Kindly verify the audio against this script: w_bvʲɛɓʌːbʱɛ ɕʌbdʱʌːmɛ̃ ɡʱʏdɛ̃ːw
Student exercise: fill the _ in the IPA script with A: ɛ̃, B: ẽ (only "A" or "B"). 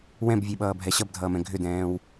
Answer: A